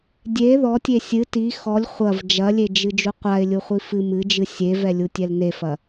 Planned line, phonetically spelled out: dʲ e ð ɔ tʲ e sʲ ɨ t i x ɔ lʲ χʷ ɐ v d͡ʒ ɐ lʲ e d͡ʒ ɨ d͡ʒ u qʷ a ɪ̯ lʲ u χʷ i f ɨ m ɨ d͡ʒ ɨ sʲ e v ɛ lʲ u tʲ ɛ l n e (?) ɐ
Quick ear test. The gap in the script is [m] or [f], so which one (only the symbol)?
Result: f